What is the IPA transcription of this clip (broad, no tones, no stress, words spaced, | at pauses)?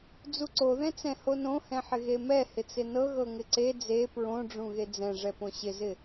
d͡zuǀoðɛ̃t͡sɛ̃ honõhɛ̃ħɪ ɣemɛ hɪt͡sɪnɤ ɣɤŋɪǀe d͡ze pɹõɖ͡ʐũ ɣed͡zɛ̃ʐɛ põɕɪzɪ